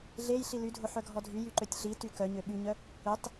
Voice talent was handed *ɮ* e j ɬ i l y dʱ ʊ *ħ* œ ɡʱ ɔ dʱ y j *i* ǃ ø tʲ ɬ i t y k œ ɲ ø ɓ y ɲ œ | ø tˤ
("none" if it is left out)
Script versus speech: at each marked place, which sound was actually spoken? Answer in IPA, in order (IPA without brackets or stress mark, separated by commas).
ɮ, ħ, y